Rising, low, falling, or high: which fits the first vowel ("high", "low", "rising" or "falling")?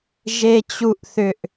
high